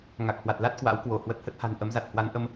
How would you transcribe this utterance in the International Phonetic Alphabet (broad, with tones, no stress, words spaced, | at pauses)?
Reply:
ŋa˨˩k̚hwa˨˩t̚la˦˥t̚ kwa̰˧˥wkwo˧˩ hwə˨˩t̚hə˦˥t̚ha̤˨˩n ʔə˨˦mza˨˩t̚ hwa˨˦nʔə˧m